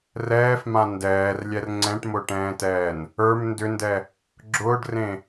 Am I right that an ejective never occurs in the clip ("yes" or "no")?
yes